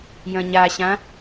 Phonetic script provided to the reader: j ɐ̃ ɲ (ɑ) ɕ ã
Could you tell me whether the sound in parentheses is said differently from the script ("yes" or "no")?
yes